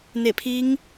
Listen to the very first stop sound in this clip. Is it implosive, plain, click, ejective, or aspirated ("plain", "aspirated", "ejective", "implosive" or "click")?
aspirated